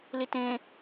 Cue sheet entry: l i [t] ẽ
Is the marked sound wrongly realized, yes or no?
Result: no